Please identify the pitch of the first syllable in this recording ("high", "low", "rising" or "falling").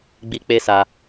high